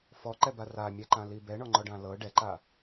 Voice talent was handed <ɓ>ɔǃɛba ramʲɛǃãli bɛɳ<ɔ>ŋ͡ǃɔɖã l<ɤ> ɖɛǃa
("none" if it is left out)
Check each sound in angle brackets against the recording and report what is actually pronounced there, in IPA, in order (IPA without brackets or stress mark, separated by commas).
f, ɔ, ɤ